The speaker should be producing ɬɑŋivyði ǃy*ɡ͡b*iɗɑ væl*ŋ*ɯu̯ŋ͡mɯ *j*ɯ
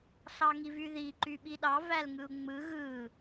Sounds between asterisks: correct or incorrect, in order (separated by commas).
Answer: incorrect, correct, incorrect